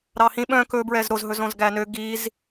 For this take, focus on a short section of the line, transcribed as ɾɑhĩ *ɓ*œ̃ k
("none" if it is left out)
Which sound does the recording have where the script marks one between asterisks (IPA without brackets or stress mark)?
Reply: ɓ